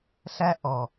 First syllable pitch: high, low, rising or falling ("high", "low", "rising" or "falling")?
high